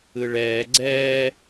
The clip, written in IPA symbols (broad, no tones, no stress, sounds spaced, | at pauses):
ɯ ɭ ɛː ɡ͡ǀ ɛː